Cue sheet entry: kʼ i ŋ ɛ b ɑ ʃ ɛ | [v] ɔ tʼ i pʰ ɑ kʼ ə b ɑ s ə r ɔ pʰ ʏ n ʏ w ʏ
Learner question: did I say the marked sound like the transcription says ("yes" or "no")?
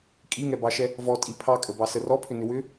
yes